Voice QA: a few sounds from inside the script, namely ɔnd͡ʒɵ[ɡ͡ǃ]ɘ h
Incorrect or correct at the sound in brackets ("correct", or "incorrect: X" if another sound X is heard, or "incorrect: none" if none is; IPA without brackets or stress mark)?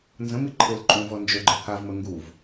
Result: correct